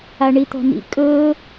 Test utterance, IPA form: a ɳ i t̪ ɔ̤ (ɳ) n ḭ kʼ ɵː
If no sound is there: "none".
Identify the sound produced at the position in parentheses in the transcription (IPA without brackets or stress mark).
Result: none